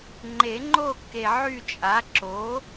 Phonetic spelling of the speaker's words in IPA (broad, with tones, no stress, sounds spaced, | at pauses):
ŋ͡ǃ e˨˩˦ ŋ͡ǃ o˦˨ kː e˨ ʕ y˦˨ t͡ʃʼ a˩˥ ǁ o˩˥